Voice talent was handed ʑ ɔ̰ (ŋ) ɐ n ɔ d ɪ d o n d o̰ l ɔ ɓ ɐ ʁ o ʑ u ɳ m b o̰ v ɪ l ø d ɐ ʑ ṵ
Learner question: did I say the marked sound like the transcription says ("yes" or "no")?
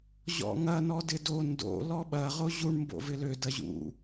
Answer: yes